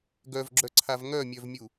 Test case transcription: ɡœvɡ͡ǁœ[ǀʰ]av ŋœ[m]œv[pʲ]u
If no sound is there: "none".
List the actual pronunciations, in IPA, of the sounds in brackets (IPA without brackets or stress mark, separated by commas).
ǀʰ, mʲ, mʲ